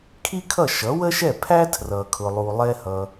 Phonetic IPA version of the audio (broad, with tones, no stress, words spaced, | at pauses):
kʰi˥kʰʌ˥˩ ʃʌ˩˥wə˥ʃɛ˥˩pʰæ˥ tʰrʌ˩kʰʊ˩lˠu˩ lˠɛ˧hʌ˩